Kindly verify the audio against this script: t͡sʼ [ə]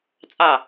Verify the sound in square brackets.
incorrect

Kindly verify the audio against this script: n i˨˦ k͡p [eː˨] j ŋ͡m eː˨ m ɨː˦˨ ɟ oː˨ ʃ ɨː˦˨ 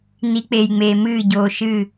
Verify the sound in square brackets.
correct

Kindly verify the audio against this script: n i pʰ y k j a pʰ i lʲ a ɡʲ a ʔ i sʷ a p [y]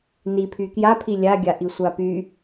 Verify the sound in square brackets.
correct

